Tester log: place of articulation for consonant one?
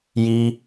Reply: palatal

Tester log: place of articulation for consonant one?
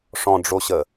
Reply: retroflex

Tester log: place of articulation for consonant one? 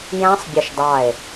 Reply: palatal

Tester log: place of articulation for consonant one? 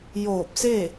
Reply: palatal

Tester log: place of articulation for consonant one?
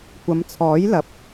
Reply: velar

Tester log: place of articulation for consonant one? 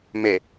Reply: labial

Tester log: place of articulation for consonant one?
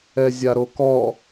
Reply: alveolar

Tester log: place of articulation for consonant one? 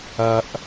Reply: glottal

